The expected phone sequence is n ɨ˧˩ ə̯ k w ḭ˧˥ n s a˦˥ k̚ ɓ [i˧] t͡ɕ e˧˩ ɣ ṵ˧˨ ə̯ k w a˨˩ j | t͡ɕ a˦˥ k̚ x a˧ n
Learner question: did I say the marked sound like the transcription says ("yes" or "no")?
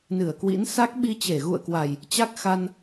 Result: yes